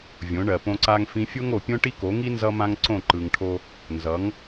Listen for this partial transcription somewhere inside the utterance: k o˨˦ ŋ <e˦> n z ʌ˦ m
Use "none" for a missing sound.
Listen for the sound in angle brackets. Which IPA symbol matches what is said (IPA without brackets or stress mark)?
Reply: i˦